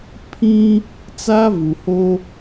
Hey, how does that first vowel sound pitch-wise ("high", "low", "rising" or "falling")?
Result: high